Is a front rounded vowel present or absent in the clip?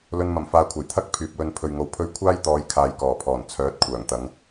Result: present